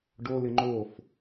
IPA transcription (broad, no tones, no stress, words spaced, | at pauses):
ɖolɪ ŋ͡ǃof